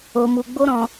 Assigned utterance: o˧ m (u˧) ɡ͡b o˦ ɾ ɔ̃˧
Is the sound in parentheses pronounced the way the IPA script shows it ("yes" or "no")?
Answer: yes